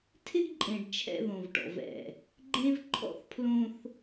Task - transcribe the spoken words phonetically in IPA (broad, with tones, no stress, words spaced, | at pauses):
tʰɪ˦ɡǃʼẽ˨ɖ t͡ʃʰɛ̰˦ðõ˨vʈɔ̰˨vɛ̰˦˨ | ɡ͡ǃẽ˦v ǃʰɔ̰˦θpʰlõ˦θ